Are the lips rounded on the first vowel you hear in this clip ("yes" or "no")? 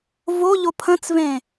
yes